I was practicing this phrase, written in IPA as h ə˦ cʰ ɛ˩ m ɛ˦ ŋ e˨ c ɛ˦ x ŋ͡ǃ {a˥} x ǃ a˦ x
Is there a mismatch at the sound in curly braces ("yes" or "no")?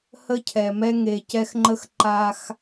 yes